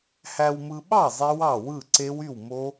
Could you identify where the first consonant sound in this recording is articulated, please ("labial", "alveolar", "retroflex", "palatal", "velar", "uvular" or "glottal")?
glottal